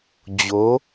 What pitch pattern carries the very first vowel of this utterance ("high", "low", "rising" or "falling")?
rising